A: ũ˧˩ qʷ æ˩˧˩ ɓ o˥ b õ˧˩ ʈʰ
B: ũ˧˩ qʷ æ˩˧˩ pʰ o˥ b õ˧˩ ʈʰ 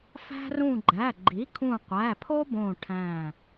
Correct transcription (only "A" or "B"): B